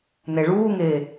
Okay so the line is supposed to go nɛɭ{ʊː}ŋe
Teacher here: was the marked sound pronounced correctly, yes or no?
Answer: no